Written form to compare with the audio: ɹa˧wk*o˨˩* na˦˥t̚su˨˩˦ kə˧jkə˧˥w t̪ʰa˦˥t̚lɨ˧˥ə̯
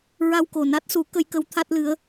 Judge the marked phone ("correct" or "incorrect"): correct